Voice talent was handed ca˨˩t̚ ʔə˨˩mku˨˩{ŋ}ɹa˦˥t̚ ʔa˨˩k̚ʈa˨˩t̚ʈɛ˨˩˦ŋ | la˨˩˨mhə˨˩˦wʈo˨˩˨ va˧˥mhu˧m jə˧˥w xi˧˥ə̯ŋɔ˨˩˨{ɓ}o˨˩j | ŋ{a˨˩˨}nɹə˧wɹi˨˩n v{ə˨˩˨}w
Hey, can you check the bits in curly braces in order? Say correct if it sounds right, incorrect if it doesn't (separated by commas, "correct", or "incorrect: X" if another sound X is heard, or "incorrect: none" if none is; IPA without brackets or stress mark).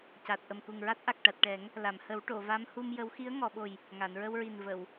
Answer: correct, correct, correct, correct